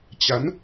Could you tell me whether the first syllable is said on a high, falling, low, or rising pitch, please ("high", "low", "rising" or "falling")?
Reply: rising